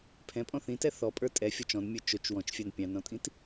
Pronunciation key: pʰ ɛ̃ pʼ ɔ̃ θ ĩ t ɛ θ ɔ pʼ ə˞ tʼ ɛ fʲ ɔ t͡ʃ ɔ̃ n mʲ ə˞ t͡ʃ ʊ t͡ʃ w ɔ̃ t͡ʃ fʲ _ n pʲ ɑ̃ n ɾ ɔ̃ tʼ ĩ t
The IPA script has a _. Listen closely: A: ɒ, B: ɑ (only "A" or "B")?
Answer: B